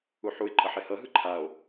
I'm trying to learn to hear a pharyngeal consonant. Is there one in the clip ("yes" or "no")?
yes